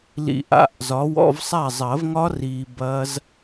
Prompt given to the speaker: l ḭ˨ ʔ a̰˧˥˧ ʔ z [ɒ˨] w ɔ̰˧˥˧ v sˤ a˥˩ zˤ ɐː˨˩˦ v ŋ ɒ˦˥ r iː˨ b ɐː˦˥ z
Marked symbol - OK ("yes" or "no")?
no